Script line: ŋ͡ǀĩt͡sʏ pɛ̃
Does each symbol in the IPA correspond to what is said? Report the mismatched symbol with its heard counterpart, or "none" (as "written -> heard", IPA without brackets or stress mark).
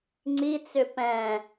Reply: ĩ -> i